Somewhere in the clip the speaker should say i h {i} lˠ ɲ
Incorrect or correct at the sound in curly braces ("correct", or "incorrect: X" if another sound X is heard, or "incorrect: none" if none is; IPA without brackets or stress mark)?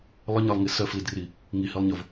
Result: correct